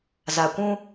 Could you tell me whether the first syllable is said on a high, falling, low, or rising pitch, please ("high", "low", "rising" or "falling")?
low